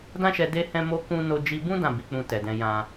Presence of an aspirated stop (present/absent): absent